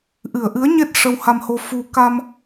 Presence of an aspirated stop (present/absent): absent